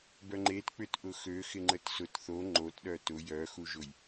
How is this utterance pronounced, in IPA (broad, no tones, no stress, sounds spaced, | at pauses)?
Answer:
b œ ŋ͡ǃ e t k͡p ʏ t ʔ ʊ x ø x ɪ ŋ͡ǃ ə t s ʊ t θ o ŋ͡ǃ o t ɗ œ t ʊ j œ x u ʒ ʊ j